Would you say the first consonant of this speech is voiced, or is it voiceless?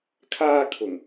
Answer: voiceless